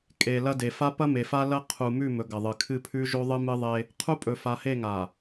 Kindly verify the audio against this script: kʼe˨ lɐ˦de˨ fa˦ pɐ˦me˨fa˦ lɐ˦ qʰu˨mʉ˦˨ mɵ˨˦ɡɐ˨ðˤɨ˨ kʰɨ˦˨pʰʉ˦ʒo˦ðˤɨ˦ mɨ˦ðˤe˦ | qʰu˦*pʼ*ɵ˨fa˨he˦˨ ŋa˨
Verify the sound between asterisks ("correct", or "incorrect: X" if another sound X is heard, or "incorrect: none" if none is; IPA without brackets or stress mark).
correct